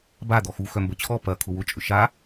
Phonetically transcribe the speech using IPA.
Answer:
b a d̪ ɔ x u x œ m b ə t͡ɕʰ ɔ p ɐ kʰ ʊ w ʊ t͡ʃʼ ʏ ʃ a

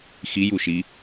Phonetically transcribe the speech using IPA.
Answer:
x i j u ʃ i

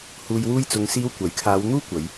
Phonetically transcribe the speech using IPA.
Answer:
h uː˨ j w uː˧ j t͡s ʊ˨ ŋ s iː˧ w kʷ ɐ˨˥ j kʰ aː˨˧ w n̪ uː˥ kʷ ɐ˨˧ j

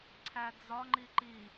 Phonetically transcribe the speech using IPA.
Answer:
ǀʰ æ d͡z ɒ ŋ͡ǃ i ǃ i

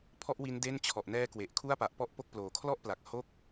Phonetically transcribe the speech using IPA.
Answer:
pʰ ɔ˥˩ ʔ w i˦˥ n d e˥˩ n t͡ɕʰ ɔ˨˩ ʔ n ɛː˦˥ k w e˨˩ ʔ kʰ u˥˩ a̯ p a˨˩ ʔ p ɔ˥˩ ʔ p o˥˩ k̚ p l oː˨˩ kʰ l ɔ˥˩ ʔ p l a˨˩ k̚ h o˥˩ k̚

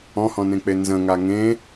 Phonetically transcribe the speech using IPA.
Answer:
ɔ̃ h ɔ̃ n ẽ k͡p e n z ə̃ ŋ a ŋ ẽ

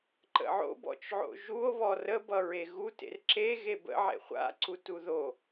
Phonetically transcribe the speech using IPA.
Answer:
ǃ ə̰ ʕ o̰ b ɔ̰ t͡ʃ ʕ o̰ ʒ u o̯ β ɔ r ə b ʌ ɹ e ɣ u t ḛ r ǁ e ɣ e b ə̰ ʕ ḛ χʷ a̰ ǀ u t u ð o

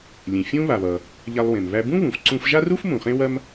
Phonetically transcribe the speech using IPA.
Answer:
lʲ ẽ˩ fʲ ũ˥ β a˩ β ʌ˩ | ʎ a˧ lˠ w ẽ˩ m β æ˧ b ũ˥ β ũ˩ f ǀ ũ˧ f ʒ a˥ r u˥ f m ũ˩ χ ẽ˥ w ɐ˥ m

